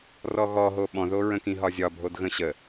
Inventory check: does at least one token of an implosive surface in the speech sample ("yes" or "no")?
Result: yes